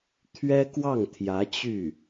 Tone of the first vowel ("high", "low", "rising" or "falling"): high